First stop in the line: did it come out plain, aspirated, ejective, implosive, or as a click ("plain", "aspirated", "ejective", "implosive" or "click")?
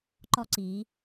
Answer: click